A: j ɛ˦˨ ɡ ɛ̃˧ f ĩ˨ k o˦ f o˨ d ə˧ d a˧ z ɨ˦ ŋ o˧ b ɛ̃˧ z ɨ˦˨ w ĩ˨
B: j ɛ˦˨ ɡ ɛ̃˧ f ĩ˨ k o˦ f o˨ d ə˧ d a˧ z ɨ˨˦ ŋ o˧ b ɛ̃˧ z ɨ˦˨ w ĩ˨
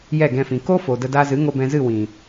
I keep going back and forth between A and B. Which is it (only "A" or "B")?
B